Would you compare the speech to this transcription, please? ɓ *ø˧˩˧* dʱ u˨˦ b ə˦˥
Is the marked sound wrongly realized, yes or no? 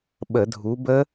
yes